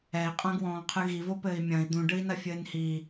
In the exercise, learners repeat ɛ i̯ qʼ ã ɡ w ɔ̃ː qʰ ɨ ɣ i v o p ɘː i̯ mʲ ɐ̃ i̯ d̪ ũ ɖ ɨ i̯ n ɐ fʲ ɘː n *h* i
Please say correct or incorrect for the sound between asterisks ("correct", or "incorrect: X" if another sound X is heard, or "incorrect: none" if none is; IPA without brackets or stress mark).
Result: correct